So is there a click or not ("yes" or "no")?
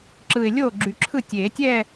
yes